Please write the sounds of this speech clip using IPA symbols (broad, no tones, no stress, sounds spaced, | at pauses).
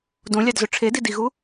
d õ lʲ ɑ d z ø ʈ͡ʂʰ e d i d i ɣ u